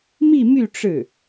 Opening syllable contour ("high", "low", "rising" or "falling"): falling